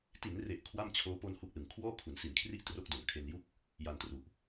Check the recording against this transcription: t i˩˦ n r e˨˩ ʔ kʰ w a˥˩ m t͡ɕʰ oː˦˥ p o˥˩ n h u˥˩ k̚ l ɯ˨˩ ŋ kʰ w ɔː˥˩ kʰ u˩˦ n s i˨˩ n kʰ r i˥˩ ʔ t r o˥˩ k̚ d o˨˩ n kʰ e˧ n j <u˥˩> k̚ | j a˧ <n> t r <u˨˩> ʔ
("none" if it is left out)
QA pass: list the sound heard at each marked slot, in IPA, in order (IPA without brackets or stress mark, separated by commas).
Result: u˥˩, n, u˨˩